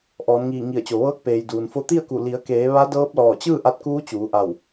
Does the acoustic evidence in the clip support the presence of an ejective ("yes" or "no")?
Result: no